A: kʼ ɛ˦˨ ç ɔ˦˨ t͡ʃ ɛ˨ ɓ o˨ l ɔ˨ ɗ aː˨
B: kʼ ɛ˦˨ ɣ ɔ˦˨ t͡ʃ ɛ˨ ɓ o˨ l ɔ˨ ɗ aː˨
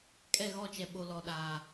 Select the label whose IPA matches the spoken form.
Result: B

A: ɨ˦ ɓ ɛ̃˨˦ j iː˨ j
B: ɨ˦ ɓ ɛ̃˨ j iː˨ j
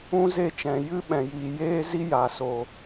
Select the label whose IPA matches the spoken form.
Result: B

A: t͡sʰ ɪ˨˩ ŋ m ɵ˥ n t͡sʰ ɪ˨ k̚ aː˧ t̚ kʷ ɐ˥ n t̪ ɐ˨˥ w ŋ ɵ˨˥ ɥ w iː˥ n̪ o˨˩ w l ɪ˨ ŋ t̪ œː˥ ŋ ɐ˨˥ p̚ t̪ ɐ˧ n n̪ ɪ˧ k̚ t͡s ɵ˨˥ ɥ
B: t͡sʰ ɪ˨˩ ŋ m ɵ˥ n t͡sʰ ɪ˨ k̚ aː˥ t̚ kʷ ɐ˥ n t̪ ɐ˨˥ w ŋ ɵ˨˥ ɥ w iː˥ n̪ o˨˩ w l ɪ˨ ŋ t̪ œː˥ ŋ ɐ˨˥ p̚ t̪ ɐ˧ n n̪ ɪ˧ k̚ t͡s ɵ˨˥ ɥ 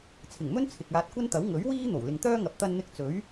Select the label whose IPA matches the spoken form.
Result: A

